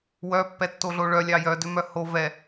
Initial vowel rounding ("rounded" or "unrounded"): rounded